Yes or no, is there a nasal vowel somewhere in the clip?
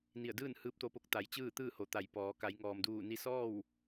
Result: no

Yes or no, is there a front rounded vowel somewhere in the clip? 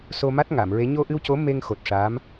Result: no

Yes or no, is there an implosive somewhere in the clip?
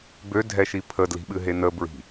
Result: yes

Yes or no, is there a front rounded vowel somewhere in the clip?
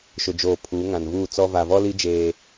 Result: no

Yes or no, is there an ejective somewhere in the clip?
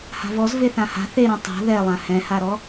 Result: no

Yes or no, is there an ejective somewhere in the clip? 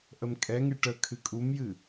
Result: yes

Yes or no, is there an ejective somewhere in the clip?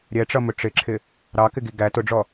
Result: no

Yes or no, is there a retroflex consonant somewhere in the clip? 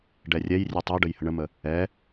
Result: yes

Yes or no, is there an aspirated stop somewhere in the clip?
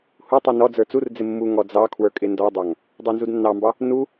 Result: yes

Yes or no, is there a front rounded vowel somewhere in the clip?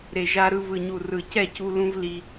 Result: no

